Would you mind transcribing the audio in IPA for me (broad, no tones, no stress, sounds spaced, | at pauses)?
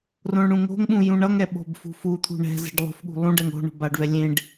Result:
r õ ɳ ɽ ũ ŋ o̤ ŋ ɓ ũ j ũ ɳ ʌ ŋ ɛ ɓ o̤ b f ṳ f u t̪ʰ ṳ ɳ ɛ̤ z ɛ̤ ɖ lˠ o̤ f ɠ ṳ lˠ ũ ɖ ɛ ŋ o̤ ɳ o̤ b a ɖ v ɛ lʲ ẽ ɖ